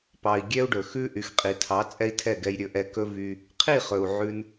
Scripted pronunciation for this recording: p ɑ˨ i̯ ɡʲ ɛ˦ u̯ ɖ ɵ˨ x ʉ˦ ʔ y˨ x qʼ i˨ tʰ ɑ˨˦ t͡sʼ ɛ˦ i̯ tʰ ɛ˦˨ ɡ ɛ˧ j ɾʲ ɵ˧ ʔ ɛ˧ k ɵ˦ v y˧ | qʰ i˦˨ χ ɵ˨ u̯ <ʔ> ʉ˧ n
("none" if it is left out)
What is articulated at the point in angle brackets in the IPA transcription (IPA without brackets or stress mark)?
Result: ʕ